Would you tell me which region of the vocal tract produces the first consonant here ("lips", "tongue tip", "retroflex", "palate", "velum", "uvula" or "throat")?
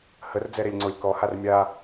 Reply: throat